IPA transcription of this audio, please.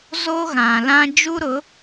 z o˦ ɣ ã˨ l ã˦ d͡ʒ u˦ ɾ ʊ˨˦

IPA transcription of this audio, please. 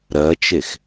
ɾ ɜ t͡ʃ e x

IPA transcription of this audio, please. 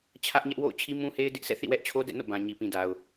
t͡ɕʰ ä˦ ʔ ɲ ɛ˦ ʔ w o̰˦˨ ʊ̯ t͡ɕʰ i˦ m ũ˦ h e˦ ɪ̯ d ɪ˦ ʔ sʰ ɛ̰˦˨ θ ḭ˦˨ w ɛ˦ ʔ t͡ɕʰ o˦ d ɛ̰˦˨ n o̰˦˨ b ã˨ ɲ i˨ p ĩ˨ d a˨ ʊ̯

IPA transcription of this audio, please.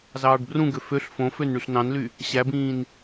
z ɑː ɖ b r ũ ɡ ø f ø ɬ f õ f ø n ɳ y ɬ n ɑ̃ n l y | ɕ æ b ĩː n

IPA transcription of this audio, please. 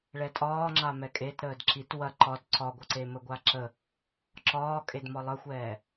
ɭ ɛ tʼ ɒː ŋ͡ǁ a m ɛ kʼ e t ɾ əː d ǁ i t w ɐ ǃ ɒ d ǀ ɒ ɡʷ ə ǀ e m ə ɡʷ a ǁ ə | ǁ ɒː kʼ e d m ɒ lˠ ə xʷ ɛː

